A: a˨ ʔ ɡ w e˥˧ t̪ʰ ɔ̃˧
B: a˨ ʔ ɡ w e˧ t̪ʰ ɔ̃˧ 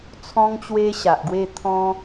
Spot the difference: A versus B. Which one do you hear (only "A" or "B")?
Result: A